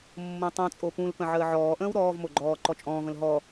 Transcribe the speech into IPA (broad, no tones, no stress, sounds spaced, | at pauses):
mː õ tˤ õ t͡sʼ o p ũ l p ə̃ ʕ əː ʕ ɔː ʔ ə̃ː w ɾ ɔː v m o ɡ͡ǃ ɔː ǃ ɔ t͡ʃʼ ɔ̃ː v ə̃ l ɦ ɔ